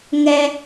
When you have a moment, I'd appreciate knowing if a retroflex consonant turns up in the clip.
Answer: no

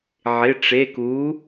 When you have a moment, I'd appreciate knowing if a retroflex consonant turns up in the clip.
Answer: yes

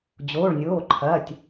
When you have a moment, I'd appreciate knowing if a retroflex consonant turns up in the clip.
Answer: yes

